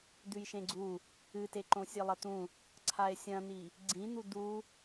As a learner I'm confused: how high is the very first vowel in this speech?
high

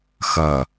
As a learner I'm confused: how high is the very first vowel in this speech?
mid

